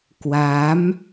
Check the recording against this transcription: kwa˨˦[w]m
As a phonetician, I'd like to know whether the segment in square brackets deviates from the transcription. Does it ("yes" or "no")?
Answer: yes